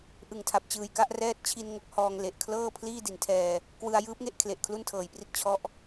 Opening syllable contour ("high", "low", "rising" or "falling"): low